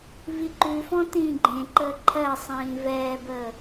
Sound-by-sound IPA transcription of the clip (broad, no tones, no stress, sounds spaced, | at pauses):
v i ǃ ʉ f ɔ̃ t ĩː ɡ͡ǃ ẽ ǃ əː ǃʰ ɜ sˤ ĩː v ɛː b əː